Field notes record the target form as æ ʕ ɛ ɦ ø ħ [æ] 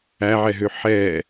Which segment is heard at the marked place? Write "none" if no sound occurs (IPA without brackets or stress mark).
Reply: ɛ